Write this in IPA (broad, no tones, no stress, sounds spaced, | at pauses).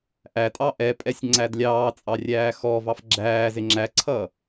ʔ æ tʼ ɑ ʔ ɛ pʼ ɛ sʲ ŋ͡ǀ æ d lʲ ɑː t͡sʼ ɑ rʲ æː x ɔ v ɑ f ɡ͡ǁ æː z ɪ ŋ͡ǁ æ ǀʰ ʌ